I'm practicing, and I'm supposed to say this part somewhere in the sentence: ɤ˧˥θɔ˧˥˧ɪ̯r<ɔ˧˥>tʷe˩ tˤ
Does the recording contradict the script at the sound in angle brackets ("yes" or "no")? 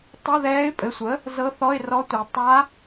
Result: no